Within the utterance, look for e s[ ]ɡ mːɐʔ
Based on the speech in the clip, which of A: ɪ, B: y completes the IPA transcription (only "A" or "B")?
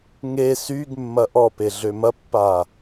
B